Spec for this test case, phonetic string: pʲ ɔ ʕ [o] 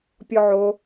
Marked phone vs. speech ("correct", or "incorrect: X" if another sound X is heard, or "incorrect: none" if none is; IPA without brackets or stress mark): correct